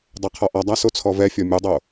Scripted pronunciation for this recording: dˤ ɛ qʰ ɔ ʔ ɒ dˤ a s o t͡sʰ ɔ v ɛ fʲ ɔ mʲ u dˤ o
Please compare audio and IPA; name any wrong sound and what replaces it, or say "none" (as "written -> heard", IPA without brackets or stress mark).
none